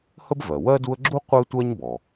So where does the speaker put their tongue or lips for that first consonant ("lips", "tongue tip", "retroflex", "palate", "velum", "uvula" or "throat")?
throat